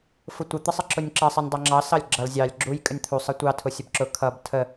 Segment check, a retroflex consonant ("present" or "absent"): absent